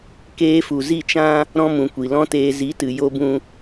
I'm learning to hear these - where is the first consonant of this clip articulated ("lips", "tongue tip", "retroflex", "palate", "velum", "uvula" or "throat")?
velum